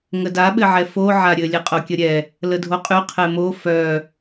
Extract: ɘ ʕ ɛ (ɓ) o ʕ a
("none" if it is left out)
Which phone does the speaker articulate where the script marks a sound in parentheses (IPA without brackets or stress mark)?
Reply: f